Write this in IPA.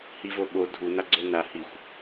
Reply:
h i v o ɓ o dʱ u n a ɡ͡ǀ o n a h i xʷ

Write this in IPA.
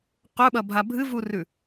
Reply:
q ɵ ɓ ɐ bʱ a bʱ ɨ v u r ʉ

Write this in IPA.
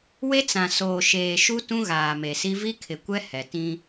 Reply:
w e˦ t͡s ã˨ s oː˨ ʃ eː˨ ʃ u˦ t ũ˦ ɣ aː˨ m e˨ s i˦ v i˦ kʰ ɪ˨ kʷ ɛ˦ h ɛ˨ t ĩ˦

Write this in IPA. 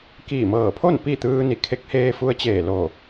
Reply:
k iː˧˩ m ɤː˧˩ pʰ o˥˨ n p i˥˨ t̪ ɯː˧ n i˧˩ kʰ e˧˥ k̚ h eː˧ f u˧ ə̯ t͡ɕ eː˧˩ l o˧˩

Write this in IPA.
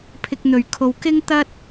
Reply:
pʰ ɪ˧ k̚ n̪ ɵ˨ ɥ kʰ o˧ w k ɪ˥ ŋ t̪ ɐ˥ t̚

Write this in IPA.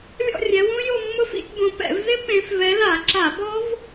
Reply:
lʲ ɔ̰˥˧ rʲ ɛ˨˦ w ũ˦˥ j o˥˧ mː ʊ˦˥ f ḭ˥˧ tʲ b õ˨˦ p ɛ̰˧˩˧ v z ɪ˦˥ p ẽ˨˦ f v ɛ˨˦ l a˧˩˧ ǁ a˧˩˧ b ɔ˦˥ v

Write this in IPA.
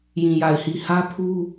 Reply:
j ĩ˨ j a˨ ɪ̯ h i˨ h ä˦ pʰ u˦

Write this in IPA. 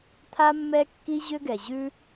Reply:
t̪ʰ a˥ mː ɛ˥ kː i˥ ʑ ʏ˥ ɡ ɛ˩ ʑ ʉ˥

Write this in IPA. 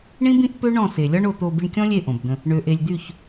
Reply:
ɳ ĩ˦ b ĩ˦ ʔ p ø˦ ɳ ɔ̃˦˨ s e˨ lʲ ɒ˦ ɳ o˧ t̪ o˧ b i˧ ɳ kʲ ɔ̃˦ lʲ e˦˨ ʔ õ˨ b d̪ ə̃˧ | ɳ ø˨ ʔ e˨ lʲ d̪ y˦˨ ç

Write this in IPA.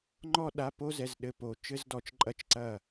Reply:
ŋ͡ǃ ɔ˥ ɗ a˧˥˧ p o˥ z ɛ˧˥˧ z ɗ ɘ˧˥˧ p o˧ t͡ʃ ɘ˥ z d ɔ˧ t͡ʃ ǃʼ ɐ˥˨ t͡ʃ ǀ ɐ˥˨

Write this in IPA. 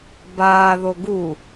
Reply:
b aː ð o ɡ u

